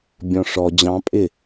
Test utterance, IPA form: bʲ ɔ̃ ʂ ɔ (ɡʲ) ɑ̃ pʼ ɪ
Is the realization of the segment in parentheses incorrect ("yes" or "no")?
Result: yes